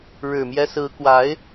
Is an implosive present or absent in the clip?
absent